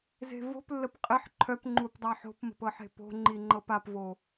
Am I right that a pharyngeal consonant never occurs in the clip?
no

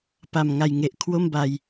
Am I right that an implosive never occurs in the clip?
yes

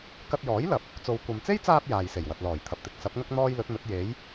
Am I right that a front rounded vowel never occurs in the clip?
yes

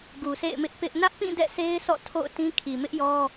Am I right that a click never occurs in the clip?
yes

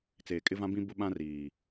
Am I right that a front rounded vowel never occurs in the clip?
yes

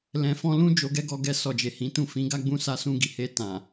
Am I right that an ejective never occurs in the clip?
yes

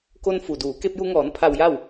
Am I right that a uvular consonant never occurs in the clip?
yes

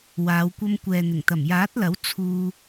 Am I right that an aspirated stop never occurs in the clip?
no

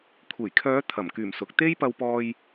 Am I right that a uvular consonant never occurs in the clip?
yes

